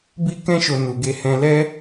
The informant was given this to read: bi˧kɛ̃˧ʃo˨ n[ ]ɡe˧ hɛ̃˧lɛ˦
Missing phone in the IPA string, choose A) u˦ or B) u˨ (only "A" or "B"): B